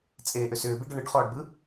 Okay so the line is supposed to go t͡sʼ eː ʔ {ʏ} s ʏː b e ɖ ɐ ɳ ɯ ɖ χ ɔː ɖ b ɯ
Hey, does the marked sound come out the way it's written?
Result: yes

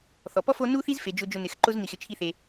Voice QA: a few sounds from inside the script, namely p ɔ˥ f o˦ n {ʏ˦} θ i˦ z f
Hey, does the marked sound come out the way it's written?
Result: no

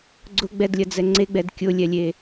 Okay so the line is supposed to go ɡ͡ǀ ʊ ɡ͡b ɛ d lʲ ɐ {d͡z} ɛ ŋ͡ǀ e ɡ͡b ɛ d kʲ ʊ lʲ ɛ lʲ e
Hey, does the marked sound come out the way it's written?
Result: yes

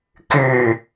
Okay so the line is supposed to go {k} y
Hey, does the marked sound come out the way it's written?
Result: yes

